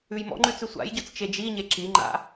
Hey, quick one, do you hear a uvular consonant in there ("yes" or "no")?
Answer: no